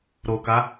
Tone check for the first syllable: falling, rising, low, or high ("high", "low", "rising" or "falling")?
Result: low